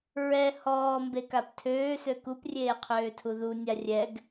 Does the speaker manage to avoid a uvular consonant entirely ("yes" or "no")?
no